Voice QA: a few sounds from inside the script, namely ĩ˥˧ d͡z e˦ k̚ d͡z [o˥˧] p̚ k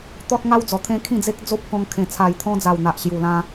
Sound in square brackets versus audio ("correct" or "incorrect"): incorrect